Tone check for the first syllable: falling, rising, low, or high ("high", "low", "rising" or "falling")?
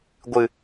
low